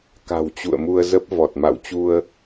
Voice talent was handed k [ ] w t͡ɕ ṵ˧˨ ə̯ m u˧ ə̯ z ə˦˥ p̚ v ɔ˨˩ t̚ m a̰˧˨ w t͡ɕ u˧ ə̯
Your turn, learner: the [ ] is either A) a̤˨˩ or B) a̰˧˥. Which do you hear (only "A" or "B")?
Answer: A